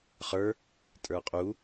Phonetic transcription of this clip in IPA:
χ ə˞ | tʼ ə˞ qʼ u

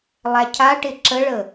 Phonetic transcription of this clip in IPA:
lˠ æ cʰ a ʈ ɪ ǁ ə ɭ ə

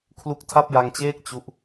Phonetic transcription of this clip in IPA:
kʰ l u˦˥ k̚ tʰ a˥˩ p̚ j a˧ ŋ t͡ɕ eː˥˩ k̚ t͡ɕ u˦˥ ʔ

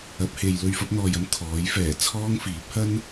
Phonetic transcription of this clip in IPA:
ɐ˨˥ p̚ h e˨ j l ɵ˧ ɥ f ɐ˨˥ p̚ n̪ ɔː˨ j ɐ˧ m t̪ʰ ɔː˨˥ j f ɛː˨˩ t͡sʰ ɔː˥ ŋ f iː˨˥ p̚ h ɐ˥ n

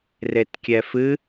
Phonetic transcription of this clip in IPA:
r e t kʲ ɛ f ɨ

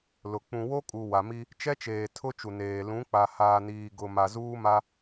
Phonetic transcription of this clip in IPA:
l ʊ˨ k͡p ũ˨ w o˦ kʼ u˨ w a˨ m i˦ | t͡ʃ ɛ˦ t͡ʃ eː˨ tʰ ʊ˦ t͡ʃ u˨ n eː˨ l ũ˨˦ k͡p a˨ h aː˨ n iː˨ ɡ ʊ˨ m a˨ z uː˦ m a˦

